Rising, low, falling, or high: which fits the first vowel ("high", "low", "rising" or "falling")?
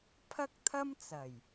high